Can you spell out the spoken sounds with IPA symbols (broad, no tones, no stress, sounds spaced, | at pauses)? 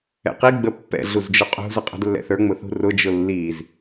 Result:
ɛ̰ q i ɡ͡b ə pː ɛ̰ ɮ u z d͡ʒ ʊ qʼ ṳ z ə qʼ ɛ̤ d lː ɛ̰ θ ə˞ ŋ͡m ʊ θ ṳ r ʊ d͡ʒ ʊ lː i z